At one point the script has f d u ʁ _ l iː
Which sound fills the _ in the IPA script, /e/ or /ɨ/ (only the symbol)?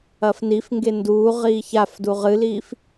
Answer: ɨ